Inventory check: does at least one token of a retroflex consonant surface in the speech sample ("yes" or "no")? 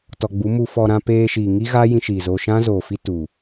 no